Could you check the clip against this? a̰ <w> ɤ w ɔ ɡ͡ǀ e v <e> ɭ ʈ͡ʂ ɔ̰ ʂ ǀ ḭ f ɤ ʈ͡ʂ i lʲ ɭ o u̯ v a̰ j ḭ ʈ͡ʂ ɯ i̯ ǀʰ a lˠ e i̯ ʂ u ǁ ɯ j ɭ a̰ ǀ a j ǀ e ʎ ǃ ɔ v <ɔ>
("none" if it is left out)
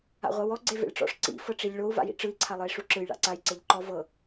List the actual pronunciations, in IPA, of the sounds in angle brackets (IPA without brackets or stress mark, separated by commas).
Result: ʁʷ, ḛ, ɤ